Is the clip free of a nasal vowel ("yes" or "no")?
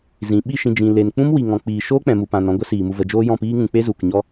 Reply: no